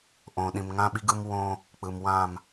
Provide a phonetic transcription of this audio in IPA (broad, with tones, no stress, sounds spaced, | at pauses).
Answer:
ʔ õ˨ ɗ ĩ˨ m ŋ ã˦ ɓ i˦ ɡ ɯ˦ m w õː˦ | k͡p ɯ˨ m w ãː˦˨ m